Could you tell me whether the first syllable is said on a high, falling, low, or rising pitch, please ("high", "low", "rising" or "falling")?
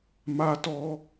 high